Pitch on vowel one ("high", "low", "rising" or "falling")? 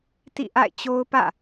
falling